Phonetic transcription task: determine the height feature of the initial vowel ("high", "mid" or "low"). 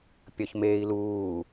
low